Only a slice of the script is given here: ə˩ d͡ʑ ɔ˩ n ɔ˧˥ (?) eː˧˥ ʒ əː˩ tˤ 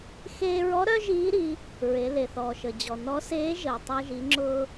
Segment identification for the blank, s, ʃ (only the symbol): s